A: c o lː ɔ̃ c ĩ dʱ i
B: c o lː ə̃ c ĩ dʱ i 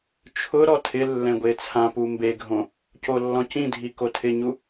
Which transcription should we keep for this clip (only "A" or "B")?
A